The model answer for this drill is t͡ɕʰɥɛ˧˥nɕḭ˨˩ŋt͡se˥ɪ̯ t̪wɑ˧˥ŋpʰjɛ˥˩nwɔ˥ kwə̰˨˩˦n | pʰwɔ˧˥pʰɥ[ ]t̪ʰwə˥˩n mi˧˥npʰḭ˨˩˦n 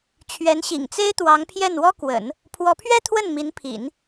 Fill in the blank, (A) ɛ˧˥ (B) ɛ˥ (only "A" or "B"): B